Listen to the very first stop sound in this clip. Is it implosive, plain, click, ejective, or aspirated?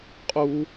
ejective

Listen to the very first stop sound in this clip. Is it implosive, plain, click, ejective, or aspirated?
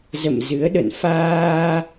implosive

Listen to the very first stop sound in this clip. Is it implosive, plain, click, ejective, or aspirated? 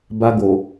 plain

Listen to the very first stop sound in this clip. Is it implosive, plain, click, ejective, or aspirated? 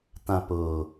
plain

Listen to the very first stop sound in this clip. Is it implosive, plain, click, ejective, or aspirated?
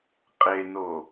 ejective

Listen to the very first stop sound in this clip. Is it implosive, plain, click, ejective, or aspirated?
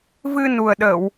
implosive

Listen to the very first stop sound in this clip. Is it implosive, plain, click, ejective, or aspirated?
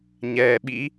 implosive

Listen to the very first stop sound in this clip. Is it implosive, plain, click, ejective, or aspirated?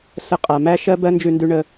ejective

